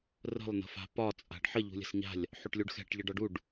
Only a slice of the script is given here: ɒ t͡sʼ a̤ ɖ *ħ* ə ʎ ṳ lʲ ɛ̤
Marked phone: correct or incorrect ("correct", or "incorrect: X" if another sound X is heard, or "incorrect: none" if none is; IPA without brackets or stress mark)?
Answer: correct